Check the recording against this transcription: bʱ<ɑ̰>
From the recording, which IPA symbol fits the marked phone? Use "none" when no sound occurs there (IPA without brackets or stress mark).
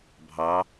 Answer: ɑ